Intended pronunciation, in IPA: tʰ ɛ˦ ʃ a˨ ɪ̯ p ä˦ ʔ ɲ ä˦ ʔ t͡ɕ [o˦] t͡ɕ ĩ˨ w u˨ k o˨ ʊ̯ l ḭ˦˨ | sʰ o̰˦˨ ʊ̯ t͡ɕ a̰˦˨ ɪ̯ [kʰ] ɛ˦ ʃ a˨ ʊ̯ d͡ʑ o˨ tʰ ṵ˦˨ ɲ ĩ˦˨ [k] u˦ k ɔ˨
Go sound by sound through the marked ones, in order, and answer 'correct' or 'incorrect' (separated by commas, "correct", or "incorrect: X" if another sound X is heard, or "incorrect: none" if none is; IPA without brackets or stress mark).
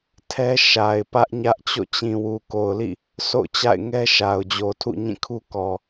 incorrect: o̰˦˨, incorrect: ŋ, incorrect: kʰ